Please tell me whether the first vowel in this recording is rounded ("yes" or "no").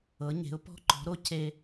no